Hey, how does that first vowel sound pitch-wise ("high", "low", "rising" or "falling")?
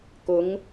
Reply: rising